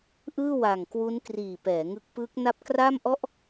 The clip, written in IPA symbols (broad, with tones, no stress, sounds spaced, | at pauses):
ʔ ɯː˥˩ w a˨˩ ŋ k w u˦˥ n k r iː˨˩ p ɛː˩˦ ŋ ɯ˦˥ k̚ p ɯː˦˥ k̚ n a˦˥ p̚ k r a˥˩ m ʔ ɔ˥˩ ʔ